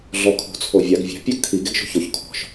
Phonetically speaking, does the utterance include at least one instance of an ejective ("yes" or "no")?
no